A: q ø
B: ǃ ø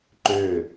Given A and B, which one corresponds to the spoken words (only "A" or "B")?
B